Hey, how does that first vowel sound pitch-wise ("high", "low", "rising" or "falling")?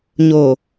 low